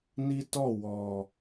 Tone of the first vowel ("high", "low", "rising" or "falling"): high